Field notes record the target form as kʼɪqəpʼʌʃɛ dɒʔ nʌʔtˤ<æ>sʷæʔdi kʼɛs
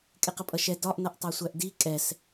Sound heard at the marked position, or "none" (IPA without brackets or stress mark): ɜ